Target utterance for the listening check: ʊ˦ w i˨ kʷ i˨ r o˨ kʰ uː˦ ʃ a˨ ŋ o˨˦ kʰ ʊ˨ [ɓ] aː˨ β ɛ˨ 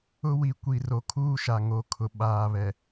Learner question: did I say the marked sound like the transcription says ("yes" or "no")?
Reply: yes